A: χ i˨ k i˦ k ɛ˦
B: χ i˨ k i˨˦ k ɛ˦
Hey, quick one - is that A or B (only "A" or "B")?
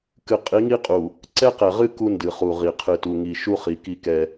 A